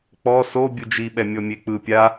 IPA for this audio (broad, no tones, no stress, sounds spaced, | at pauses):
k͡p ɔ s o bʲ u d͡ʒ i ɓ ɛ mʲ ɔ mʲ e k͡p ɯ pʲ a